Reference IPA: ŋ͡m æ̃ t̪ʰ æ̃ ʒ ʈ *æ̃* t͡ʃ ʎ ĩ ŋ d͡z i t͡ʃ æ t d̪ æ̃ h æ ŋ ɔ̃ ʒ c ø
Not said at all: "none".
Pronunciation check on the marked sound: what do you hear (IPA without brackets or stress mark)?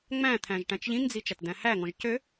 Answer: æ̃